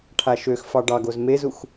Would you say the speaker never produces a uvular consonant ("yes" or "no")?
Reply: yes